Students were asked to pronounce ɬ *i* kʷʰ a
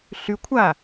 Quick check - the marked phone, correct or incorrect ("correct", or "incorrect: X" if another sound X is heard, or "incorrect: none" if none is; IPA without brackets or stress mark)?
incorrect: y